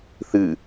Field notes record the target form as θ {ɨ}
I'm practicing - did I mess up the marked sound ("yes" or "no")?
no